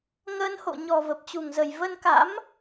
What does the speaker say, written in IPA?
ŋ əː˧ n h o̰˧˨ ɲ ɔ˨˩ v ə˨˩ p̚ t͡ɕ u˨˩ ŋ z ə˨˩ j v ə˧ n k a̰˧˥ m

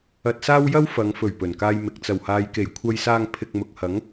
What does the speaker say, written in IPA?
ɐ˧ t̚ s aː˥ w j ɐ˥ w f ɐ˨˧ ŋ f ɵ˨˩ ɥ p ɵ˨˩ n k aː˧ j m ɪ˨ k̚ t͡s ɐ˨˩ w h aː˨ j k e˨˩ j kʷʰ ɐ˧ j s aː˧ ŋ pʰ ɪ˨ k̚ m ʊ˨ k̚ h ɐ˨˥ ŋ

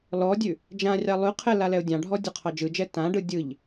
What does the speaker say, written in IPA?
l ɔ dʲ ʉ | d͡ʒ ã rʲ ɑ lˠ ʉ qʰ ɛ l a l ɛ ʊ̯ dʲ ɑ̃ ɖʱ ɔ dʲ ɔ qʰ ɑ d͡ʒ ɯ d͡ʒ ɛ t ã ɖ ɯ dʲ ɯ ʎ

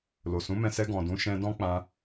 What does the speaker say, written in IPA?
l o˨ s ũ˨˦ m ɛ̃˧ s ɛ˧ ɡ ɔ̃˨ d ũ˨˦ ʃ ɛ̃˧ d ɔ̃˦ k͡p ã˧

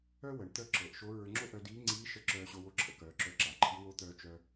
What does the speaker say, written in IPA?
œ˥ w ə˩˧ ɳ t̪ œ˥ ǁ ɤ˩˧ ʔ ʃ o˧˥ ɹ ə˞˧ ŋ͡ǁ o˥ ʔ œ˧ d iː˧˥ ŋ͡ǀ iː˧˥ ʃ ə˧˥ ǁ œː˧ ɕ o˧ w o˧˥ ǁʰ ə̰˧ k œː˩˧ ǁ œ˧ ǁ a˩ ǃʰ i˧˥ w o˧˥ t̪ œː˧ t͡ʃ œ˧

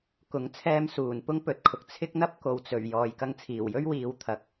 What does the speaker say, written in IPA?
k ʊ˨˥ ŋ t͡sʰ ɛː˧ m s uː˨˩ n p ʊ˥ ŋ p ɵ˨˥ t̚ kʰ ʊ˨ k̚ t͡sʰ ɪ˥ k̚ n̪ ɐ˥ p̚ k o˨ w t͡s ɵ˨˩ ɥ j ɔː˨ j k ɐ˧ ŋ t͡sʰ iː˨˩ w j ɵ˥ ɥ w iː˨˧ w t̪ʰ ɐ˨˥ k̚

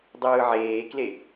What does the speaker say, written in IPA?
dˤ ɯː ʕ eː k l e

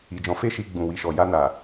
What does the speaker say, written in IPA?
i˨ d͡ʒ ɔ̃˨˦ f e˦ ʃ i˧ ɡ͡b ũ˨ w i˨ ʃ ɔ˨ j a˧ n a˨

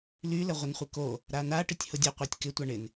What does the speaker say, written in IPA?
l y l ə ʁʷ ə n χʷ ɪ k o | ɾ a n a ʈ ɪ tʲ h ʊ dʲ ə qʷ a tʲ k ɪ tʷ a ɳ ɪ n

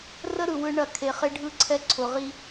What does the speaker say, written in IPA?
r ə˦ ɾ ɯ˨ w ɯ˦ ɳ ɐ˦˨ kʰ e˨ χ e˦ ɖʱ ɯ˦ ǀʰ ɛ˦ ǀʰ ʊ˨ ʁ i˦

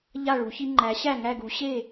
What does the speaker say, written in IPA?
ʎ a˥˩ ɭ u˩˥ ç i˦ ŋ͡ǃ æ˩˥ ɕ æ˥˩ ŋ æ˥˩ ɡ u˩˥ ɕ e˥˩

